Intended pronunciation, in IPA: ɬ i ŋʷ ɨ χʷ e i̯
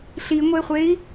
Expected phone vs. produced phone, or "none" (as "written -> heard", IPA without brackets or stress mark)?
ɨ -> e